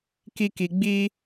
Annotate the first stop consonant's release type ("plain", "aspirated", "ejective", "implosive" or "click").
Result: plain